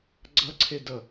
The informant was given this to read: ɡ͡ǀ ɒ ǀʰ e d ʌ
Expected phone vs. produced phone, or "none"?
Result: ɒ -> ʌ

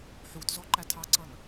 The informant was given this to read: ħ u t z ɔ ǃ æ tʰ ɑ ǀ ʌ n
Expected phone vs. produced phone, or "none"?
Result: none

